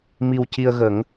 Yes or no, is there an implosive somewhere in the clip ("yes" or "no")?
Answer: no